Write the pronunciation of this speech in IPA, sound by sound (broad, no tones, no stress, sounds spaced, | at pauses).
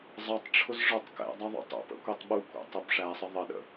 zˤ ʌ tˤ ʈ͡ʂʰ ʊ z ʐ ə˞ tˤ k ɛ̰ dˤ ɑ ðˤ ṵ tˤ ṵ p ə̰ kʷ i tˤ ɓ u kʷ ɛ̰ tˤ ʊ b ʂ æ sˤ ə ðˤ ə ɗ ə̰